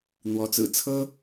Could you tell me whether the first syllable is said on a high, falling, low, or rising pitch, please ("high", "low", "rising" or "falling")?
rising